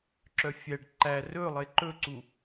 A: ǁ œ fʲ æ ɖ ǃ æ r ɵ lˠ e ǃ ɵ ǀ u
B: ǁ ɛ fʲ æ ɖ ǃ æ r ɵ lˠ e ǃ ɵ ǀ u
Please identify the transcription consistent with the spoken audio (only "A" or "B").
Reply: A